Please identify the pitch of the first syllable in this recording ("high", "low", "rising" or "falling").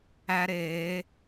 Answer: high